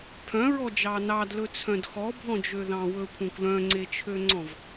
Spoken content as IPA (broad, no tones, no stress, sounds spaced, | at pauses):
pʰ œ̃ ɹ ɔ d͡ʒ ɑ n ɑ d l ɵ t͡sʰ œ̃ d x ɔ bʱ ɔ̃ d͡ʒ ø ð ɑ̃ w ɵ kʷʰ œ̃ kʷ l œ̃ ŋ͡ǀ e t͡ʃʰ ø ŋ͡ǀ ɔ̃ v